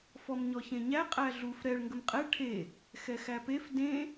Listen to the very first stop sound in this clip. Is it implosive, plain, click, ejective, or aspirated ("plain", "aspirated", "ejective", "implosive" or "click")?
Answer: ejective